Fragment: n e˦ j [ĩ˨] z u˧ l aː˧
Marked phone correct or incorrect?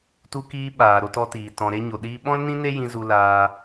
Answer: incorrect